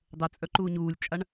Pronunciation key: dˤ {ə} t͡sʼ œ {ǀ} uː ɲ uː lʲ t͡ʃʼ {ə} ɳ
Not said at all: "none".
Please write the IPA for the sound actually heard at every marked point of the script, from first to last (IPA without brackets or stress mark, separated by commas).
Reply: ə, ǃ, a